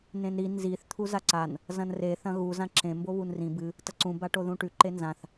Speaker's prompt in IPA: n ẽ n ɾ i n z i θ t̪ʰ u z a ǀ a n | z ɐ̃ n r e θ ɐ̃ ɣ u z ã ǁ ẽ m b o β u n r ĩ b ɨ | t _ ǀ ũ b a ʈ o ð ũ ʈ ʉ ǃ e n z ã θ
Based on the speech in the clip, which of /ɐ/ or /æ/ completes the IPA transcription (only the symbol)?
ɐ